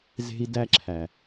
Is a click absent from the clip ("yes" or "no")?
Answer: no